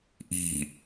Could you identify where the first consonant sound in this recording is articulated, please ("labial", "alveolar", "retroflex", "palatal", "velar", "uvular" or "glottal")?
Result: glottal